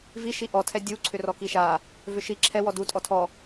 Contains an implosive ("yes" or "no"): no